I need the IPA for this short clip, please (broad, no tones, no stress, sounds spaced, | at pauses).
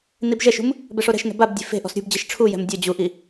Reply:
n i b ʒ ɛ ʃ ṳ m | b ɛ ʂ o ɾ ɛ̤ ʃ n ɛ̤ b a b dʲ e̤ f e̤ ʔ ɔ̤ s ɾʲ ṳ b d͡ʑ e ʃ ʈ͡ʂʰ u j ɛ̤ m dʲ ɤ d͡ʑ u ʔ i